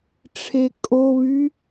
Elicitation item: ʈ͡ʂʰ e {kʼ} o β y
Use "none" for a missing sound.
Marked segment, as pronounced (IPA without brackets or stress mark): kʼ